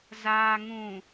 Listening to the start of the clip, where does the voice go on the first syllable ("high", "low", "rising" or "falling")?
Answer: low